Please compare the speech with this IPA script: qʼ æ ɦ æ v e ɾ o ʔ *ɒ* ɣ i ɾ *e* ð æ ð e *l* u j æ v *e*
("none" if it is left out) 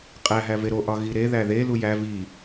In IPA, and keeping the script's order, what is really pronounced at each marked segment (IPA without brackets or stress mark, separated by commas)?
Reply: ɒ, e, l, i